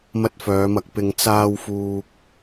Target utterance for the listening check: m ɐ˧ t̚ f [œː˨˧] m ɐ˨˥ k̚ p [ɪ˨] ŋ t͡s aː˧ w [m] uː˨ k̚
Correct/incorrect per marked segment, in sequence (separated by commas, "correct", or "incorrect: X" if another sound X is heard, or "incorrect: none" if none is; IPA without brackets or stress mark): correct, correct, incorrect: f